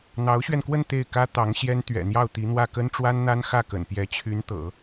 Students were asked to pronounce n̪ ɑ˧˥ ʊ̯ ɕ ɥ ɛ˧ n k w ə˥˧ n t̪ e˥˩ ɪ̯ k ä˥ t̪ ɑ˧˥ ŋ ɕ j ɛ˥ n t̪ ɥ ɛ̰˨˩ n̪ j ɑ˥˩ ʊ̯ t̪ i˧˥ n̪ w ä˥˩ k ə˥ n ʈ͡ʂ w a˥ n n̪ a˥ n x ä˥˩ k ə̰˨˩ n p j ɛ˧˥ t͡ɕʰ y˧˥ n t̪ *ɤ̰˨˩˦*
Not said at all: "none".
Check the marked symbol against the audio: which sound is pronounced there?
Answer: ɤ̰˨˩˦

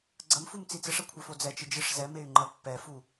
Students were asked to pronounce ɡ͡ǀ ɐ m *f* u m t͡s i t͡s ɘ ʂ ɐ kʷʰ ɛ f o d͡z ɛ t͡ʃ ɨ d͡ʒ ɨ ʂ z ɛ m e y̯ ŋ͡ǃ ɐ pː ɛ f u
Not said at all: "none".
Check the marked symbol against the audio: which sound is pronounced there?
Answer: f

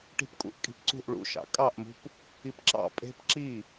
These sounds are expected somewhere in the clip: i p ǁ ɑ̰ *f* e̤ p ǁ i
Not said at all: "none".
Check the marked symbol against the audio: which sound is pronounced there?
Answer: pʼ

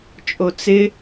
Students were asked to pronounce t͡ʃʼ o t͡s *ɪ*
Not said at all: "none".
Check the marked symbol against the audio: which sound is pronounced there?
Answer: ɪ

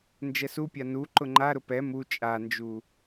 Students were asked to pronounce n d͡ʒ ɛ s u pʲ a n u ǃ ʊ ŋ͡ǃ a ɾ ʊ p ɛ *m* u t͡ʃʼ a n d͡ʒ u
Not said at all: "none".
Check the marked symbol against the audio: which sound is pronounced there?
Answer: m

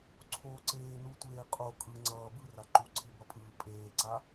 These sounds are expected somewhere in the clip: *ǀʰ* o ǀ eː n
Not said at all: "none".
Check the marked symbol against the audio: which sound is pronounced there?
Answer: ǀʰ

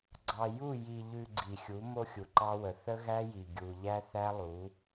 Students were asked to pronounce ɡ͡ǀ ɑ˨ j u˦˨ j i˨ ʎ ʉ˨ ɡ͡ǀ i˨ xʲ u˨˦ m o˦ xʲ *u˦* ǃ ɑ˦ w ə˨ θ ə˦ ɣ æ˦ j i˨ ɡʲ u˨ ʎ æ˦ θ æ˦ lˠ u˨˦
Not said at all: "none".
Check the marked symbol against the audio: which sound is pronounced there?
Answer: u˨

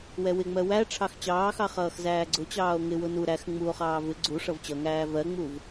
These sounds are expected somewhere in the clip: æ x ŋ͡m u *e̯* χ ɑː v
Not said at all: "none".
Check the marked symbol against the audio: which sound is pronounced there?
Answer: o̯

